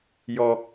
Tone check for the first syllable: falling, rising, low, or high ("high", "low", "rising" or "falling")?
low